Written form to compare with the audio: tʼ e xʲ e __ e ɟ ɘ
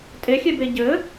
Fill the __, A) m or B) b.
B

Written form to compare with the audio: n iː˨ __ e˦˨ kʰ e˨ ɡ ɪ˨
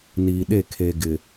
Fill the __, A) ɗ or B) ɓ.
A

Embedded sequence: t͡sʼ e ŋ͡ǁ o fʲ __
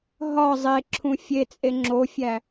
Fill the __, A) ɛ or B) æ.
B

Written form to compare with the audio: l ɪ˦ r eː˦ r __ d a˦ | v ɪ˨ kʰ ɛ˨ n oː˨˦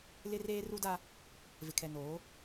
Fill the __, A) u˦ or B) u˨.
A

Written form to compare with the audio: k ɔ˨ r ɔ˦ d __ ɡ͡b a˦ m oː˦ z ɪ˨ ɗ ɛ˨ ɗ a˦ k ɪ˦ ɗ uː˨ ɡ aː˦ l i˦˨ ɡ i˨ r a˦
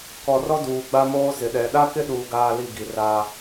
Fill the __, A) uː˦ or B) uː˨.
B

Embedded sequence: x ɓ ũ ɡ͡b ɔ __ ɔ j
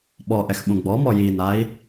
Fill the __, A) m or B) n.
A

